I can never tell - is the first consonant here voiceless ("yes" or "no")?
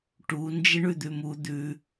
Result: yes